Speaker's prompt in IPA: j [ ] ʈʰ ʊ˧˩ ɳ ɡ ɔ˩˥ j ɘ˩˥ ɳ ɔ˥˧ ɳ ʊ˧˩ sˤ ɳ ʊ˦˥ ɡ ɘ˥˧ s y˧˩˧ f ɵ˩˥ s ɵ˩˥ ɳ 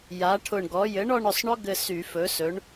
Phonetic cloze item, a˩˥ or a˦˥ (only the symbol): a˩˥